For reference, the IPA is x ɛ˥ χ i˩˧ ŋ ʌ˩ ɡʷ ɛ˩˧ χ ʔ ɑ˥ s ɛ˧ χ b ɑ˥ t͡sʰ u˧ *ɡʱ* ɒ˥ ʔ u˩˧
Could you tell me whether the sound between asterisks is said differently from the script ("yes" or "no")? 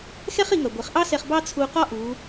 yes